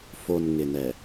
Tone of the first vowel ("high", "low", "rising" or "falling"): low